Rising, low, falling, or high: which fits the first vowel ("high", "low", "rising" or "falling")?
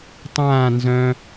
falling